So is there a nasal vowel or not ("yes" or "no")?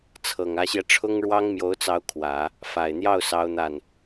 no